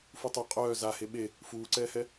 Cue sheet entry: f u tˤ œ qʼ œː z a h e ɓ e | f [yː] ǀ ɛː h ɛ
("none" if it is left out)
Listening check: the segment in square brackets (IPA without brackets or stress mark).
uː